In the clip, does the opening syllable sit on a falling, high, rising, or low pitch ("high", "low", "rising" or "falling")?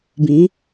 rising